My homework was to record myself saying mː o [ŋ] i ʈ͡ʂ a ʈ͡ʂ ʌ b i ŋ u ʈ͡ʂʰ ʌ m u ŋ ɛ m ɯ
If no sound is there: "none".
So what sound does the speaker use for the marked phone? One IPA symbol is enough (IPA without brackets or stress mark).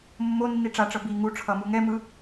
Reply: nː